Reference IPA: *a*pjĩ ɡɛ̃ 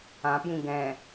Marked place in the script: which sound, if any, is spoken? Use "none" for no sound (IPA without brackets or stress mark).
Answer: ã